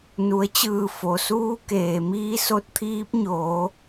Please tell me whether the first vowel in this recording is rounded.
yes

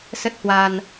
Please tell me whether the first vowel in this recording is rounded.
no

